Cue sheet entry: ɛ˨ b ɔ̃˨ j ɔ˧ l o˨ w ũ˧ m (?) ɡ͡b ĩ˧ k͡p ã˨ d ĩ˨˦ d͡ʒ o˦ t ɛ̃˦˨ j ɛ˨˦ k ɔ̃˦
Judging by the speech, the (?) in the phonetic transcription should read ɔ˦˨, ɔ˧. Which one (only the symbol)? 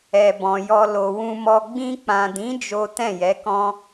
ɔ˧